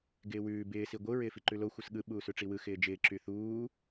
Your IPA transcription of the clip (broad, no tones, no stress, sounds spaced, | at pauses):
ɡ ɪː w ʉː b ɪː s i ɡʷ ɯ ɹ ɪː f i ǃ ʉ l o xʷ ɯ s ɠ ɯ ɓ uː s ʉ ʈ͡ʂ i w ɯ x ɪː d͡ʒ ɪː ǁ y θ uː